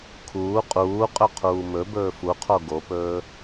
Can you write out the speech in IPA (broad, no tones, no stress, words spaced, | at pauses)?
kʰuː qʼuːqʼɵ qʰuːmɵbɵː fuqʰo ɡopɵː